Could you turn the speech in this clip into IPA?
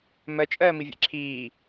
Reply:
mɜ t͡ʃʼɜːmivʲɛ̰ǁʰiː

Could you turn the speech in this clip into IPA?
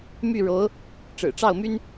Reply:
my˥˩ɻo˧˥ʊ̯ | ʈ͡ʂɻ̩˨˩ʈ͡ʂɑ˥˩ʊ̯my˥n

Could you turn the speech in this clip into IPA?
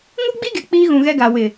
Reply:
ŋu˦ɡ͡bi˦ɡe˨ k͡piː˦ɣũ˨ɣɛ˦ɡa˨ wɪ˨

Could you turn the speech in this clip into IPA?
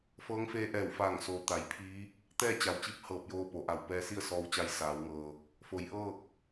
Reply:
fɤː˧˥ŋfeː˧˥ʔɛː˧˩wfaː˧˩ŋ soː˩ t̪a˩˧jpʰiː˧˥ | t̪ɛː˥˨t͡ɕa˩wt͡ɕi˧˥p̚ hɤː˧˩p̚joː˧ po˩˧ʔa˧˩w pɛː˧si˥˨ə̯sɔː˧wt͡ɕa˧j saː˩˧wŋɤː˩ | fo˩˧jʔɤː˥˨k̚

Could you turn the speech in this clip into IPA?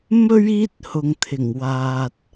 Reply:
mɵ˥ɥ iː˥t̚hʊ˨ŋt̪ʰɪ˨˩ŋwaː˨t̚

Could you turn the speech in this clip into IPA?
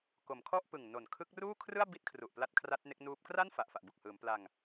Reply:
ko˩˦mkʰɔ˥˩ʔpɯ˨˩ŋ no˨˩nkʰɯ˦˥k̚ruː˥˩kʰrɯ˥˩a̯ bi˥˩t̚kʰru˨˩ʔ pla˦˥t̚kʰra˦˥t̚ne˦˥k̚nuː˦˥p̚ kra˥˩n fa˨˩ʔfa˨˩ʔbu˨˩k̚hɯː˩˦m pla˧ŋ

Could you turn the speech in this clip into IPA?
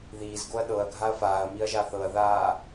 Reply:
ðiːzɡoɐ̯ ɗɤɐ̯ɡʱaɐ̯ faːɐ̯miɐ̯ʒa θɤɐ̯ðaː

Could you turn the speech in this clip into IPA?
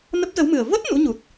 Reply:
nə˦˥p̚zə˨˦wmɨ˨˩ə̯ və˦˥t̚ nṵ˧˥ɲu˨˩t̚

